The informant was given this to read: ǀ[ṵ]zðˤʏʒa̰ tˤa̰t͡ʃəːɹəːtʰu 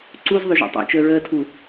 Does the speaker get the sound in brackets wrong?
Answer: yes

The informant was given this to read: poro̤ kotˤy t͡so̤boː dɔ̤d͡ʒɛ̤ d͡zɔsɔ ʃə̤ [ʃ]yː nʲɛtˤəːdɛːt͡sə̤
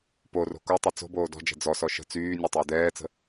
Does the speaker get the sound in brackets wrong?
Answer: yes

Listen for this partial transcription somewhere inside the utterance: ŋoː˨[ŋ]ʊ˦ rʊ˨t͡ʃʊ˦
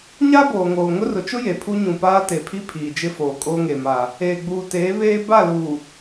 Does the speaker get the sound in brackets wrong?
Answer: no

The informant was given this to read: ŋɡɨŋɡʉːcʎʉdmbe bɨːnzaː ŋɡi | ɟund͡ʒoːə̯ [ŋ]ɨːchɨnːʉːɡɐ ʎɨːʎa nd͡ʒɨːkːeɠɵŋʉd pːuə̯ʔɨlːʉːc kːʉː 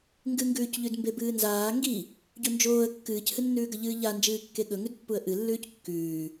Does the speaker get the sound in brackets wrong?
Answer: yes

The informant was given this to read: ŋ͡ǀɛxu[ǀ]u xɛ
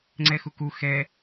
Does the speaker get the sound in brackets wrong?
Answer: yes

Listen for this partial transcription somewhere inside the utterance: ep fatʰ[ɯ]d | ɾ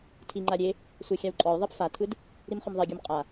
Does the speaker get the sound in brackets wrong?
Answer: no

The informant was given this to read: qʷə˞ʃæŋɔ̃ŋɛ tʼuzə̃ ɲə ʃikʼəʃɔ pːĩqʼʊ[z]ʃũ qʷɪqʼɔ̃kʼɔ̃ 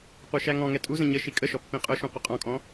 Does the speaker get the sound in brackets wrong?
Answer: yes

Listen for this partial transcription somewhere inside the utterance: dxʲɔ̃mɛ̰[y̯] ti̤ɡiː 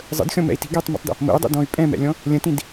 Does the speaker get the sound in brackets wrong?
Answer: yes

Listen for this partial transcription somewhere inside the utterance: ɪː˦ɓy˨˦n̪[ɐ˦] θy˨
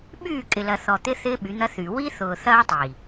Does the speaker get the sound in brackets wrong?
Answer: no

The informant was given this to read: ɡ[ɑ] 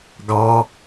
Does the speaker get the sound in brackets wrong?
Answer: no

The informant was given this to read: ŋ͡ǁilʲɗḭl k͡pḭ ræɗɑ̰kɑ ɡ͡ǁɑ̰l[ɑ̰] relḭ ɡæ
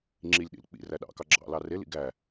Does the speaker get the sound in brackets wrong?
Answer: yes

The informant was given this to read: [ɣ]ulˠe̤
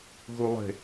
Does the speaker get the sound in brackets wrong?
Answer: no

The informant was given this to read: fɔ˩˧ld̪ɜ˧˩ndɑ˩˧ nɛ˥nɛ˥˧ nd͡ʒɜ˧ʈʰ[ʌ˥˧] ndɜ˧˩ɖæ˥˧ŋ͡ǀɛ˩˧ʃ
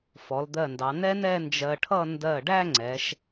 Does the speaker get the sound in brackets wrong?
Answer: no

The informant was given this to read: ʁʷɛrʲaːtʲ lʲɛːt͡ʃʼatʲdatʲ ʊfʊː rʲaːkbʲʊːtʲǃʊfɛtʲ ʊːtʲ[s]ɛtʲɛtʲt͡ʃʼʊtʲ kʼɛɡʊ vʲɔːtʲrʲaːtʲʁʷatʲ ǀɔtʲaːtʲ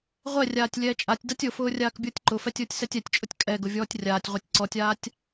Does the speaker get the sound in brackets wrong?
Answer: no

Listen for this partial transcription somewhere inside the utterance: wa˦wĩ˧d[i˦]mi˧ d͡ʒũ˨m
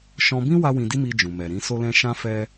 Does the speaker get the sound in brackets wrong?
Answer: no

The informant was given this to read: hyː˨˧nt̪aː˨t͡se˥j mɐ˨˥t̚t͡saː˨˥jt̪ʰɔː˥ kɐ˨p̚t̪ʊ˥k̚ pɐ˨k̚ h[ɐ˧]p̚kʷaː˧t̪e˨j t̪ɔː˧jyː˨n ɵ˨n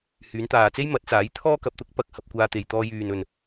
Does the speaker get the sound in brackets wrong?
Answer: no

